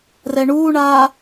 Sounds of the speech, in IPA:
rɛɳuːɳaː

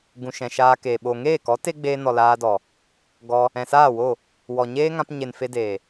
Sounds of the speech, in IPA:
ɡũ˨ʃɛ̃˨ ʃaː˧keː˨ ɓo˨ŋeː˦˨kɔ˨˦ te˦ɡ͡beː˧nɔ˨ laː˧dɔ˨ | ɡɔ˧ | ɛ̃˨saː˦˨wo˦˨ | wɔ˨ɲeː˦ŋã˧p ɲe˨n fe˧deː˨

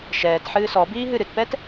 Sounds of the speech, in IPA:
ʃɛːtħɨː sɔbiːɦɨ ɾɨtpɛt

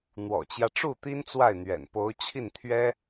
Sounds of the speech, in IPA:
n̪wɔ̰˨˩t͡ɕjä˦ʈ͡ʂu˥˩ t̪i˥nt͡swa˥˩ɪ̯n̪ɥɛ̰˨˩npo˧˥ʊ̯ t͡ɕʰi˥˩nt̪ʰɥɛ˥

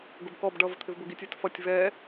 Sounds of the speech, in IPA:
ɡʊbkɔb ɖʌ vət̪ʰɪvbʊɡitʲ ɛtfʌtʲ vɛ

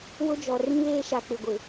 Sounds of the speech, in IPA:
wʊ˦d͡ʒɔ˨ rĩ˦βeː˦ʃa˨ k͡pɪ˨ɡʷɪ˨

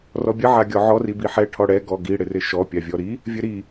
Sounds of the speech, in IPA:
rɔbʲə ʕaɡʲɔʕɔ ribiħɛ ʈʰɔɽɛ ɡɔɡi ɽɪrɪʃɔ pʲavʲɔɾi | vʲəɾi

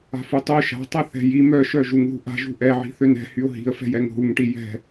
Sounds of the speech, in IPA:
a̤futˤø ʃa̤tˤɛ θɛ̤ji mœʃœ ʒuŋðṳʔa̤ʒṳ ʔɛʕi̤ θønɛ̤hyʊ̯ ɦi̤ə̯fɛ̤jɛŋ ɦuŋʈi jɛ̤

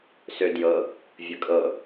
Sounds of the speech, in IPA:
sødjɤ | vʲəkʼɤ

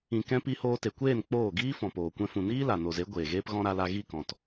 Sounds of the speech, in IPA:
ĩ˧kɛ̃˦ pi˧hoː˧ te˨kʷeː˦˨n k͡poː˦˨ ɡiː˦fɔ̃˨ poː˨kʷɛ̃˧fũ˨ niː˦la˨ no˨ze˨˦ ɡʷeː˨ɣeː˦pɣɔ̃˦ ɾa˧la˧ ɣi˦˨kɔ̃˨t

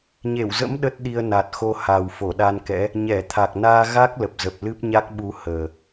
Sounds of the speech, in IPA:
ɲe˧˩wzə̰˧˥m ɗə˦˥t̚ɗi˧ə̯ na˨˩t̚xo˧ ha˨˩wfo˧˩ ɗa˧nkɛ̰˧˥ | ɲɛ˧˩t̪ʰa˨˩k̚ naː˧ɣa˦˥k̚lə˨˩p̚zə˨˩p̚ lɨ˦˥p̚ɲa˦˥k̚ɓu˧ həː˨˩

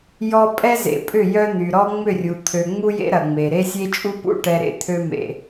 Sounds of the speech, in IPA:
jɔ˦ pʼɛ˦zḛ˨pʼʏ˦˨ jœ˦n̪y˨ ɾɔ˦ŋ͡mʏ˦˨rʲu˨ t̪ʰø˨ŋ͡mu˦jḛ˦ ɾɐ˨ŋ͡me˨ ɾe˦sʲe˦t͡ʃʼu˦ pṵ˦ ʈɛ˨ɾḛ˦ t̪ʰø˦mḛ˨

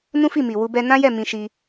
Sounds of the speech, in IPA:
nũ˦fi˦˨mi˨wu˧ bɛ˧nã˦jɛ˦˨ mĩ˧ʃi˧

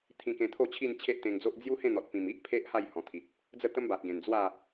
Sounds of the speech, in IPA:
t̪ʰĩ˧kẽ˧t̪ʰo˥˧t͡ɕʰi˥˧n t͡ɕʰe˦ʔt̪ẽ˧ŋd͡zo˦ʔ d͡zju˦hẽ˥˧n̪ɔ˨t̚pĩ˨˩m i˦ʔpʰe˦ʔ ha˥˧jhɔ̃˨˩t̪ʰi˨t̚ | d͡zə˥˧t̪ə˦mba˨t̚ɡẽ˨˩n d͡zwa˥˧

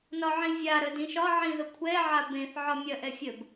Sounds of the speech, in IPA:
nɒʕĩvʲaɾə dĩʃɒʕĩ ðəkʷʰɛʕa bẽθ ʕɒmʲɐʔɛ fʲəb

